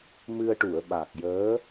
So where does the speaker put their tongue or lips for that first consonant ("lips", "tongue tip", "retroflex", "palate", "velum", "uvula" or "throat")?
lips